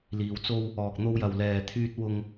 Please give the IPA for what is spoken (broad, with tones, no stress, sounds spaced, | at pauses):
l iː˨ w t͡s o˧ w | ɔː˨ k̚ n̪ o˧ w j ɐ˨ w l ɛː˨ t̪ʰ yː˧ t̚ w ʊ˧ ŋ